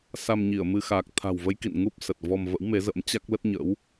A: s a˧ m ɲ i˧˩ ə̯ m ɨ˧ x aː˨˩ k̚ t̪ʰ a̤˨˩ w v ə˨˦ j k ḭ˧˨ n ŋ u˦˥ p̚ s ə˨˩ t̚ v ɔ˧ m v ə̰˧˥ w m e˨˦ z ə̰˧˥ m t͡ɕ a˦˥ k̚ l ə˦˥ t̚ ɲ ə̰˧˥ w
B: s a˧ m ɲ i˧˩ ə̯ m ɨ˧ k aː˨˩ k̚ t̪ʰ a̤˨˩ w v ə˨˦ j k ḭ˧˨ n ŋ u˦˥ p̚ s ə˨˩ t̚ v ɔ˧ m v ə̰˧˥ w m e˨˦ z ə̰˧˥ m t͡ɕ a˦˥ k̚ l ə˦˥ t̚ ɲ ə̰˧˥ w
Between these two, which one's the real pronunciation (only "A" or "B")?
A